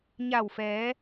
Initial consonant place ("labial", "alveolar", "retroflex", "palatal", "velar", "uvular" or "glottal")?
palatal